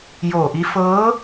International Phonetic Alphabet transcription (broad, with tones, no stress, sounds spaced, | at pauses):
j oː˧˩ ʔ i˧˥ f ɤː˧˥